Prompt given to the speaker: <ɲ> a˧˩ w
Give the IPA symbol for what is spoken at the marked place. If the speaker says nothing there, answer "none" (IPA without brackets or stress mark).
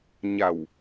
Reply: ɲ